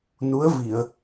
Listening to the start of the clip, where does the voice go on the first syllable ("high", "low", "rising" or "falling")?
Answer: rising